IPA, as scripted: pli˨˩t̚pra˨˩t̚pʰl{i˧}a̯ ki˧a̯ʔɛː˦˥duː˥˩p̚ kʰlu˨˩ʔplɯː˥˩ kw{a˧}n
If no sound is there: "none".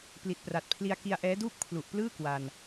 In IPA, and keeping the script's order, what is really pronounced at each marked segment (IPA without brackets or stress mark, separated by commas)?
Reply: i˧, a˧